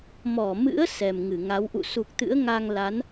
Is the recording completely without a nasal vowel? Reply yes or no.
yes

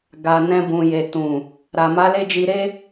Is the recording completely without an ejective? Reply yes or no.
yes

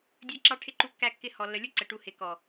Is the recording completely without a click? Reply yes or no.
no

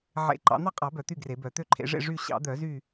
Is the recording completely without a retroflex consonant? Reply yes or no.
no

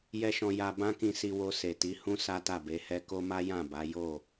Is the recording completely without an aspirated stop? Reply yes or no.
yes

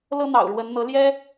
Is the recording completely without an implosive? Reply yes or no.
yes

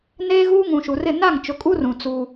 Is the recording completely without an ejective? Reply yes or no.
no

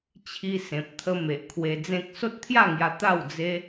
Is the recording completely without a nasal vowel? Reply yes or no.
no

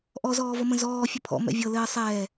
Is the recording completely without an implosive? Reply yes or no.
yes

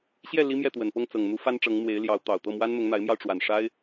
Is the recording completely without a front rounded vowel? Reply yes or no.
yes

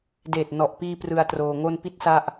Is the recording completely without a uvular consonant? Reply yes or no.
yes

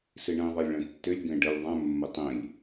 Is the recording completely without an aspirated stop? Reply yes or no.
yes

